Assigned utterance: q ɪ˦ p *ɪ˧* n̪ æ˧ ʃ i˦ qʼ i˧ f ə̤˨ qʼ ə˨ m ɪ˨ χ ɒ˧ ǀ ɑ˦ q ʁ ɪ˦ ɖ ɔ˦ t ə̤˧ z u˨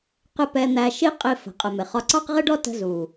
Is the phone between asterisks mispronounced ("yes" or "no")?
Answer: yes